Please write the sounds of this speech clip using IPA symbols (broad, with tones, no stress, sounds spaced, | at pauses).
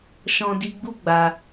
ʃ ɔ̃˧ d i˧ ɡ͡b u˦ ɡ͡b a˧